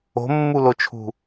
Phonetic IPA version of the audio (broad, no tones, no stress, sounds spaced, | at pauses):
o̤ mː u l o t͡ʃʰ ṳ